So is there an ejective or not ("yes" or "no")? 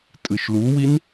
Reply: yes